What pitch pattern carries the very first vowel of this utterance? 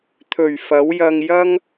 low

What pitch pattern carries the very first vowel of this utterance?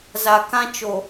low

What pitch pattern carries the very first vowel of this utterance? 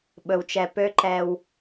low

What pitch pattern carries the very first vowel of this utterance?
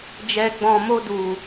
low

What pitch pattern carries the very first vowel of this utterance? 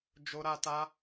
high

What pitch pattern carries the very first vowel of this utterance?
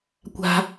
high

